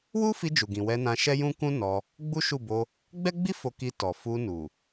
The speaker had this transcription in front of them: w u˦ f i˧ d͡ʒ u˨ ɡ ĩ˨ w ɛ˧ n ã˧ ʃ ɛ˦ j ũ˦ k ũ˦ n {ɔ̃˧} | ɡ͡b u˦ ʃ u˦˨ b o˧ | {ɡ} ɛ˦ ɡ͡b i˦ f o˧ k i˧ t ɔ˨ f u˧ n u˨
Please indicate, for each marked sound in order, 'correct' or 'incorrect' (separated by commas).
incorrect, incorrect